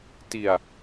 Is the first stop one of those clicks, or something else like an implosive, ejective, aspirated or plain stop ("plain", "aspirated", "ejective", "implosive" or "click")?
plain